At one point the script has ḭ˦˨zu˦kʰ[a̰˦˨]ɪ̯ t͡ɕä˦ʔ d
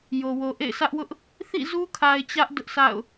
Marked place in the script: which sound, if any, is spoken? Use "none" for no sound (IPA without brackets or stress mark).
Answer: a˨